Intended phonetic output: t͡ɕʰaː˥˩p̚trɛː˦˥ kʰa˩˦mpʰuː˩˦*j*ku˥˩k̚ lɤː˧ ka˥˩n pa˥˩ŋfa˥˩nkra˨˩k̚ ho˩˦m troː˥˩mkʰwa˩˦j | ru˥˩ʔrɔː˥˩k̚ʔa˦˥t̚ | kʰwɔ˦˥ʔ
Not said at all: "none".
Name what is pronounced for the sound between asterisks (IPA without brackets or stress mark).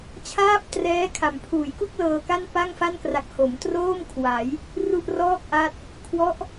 j